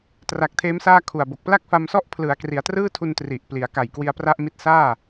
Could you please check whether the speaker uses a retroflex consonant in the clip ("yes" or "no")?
no